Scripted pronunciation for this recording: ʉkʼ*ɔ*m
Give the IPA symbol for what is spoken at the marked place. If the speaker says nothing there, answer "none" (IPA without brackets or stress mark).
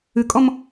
ɔ